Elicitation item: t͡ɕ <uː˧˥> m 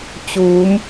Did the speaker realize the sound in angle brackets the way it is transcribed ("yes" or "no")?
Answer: no